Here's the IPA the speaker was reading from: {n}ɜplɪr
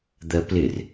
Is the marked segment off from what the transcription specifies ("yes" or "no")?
yes